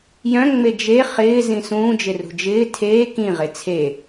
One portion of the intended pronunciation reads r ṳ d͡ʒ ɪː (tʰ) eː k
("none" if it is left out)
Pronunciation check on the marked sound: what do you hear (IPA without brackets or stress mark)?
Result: tʰ